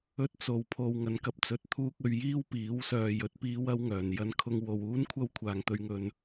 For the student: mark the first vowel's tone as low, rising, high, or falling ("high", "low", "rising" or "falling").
high